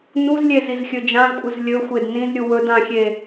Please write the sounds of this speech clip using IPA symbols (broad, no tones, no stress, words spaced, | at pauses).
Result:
nuzlʲez izxʲɵd͡ʒãzkʷʼɨz lʲɵxʷed nĩzɾʲu wɵd ãxʲe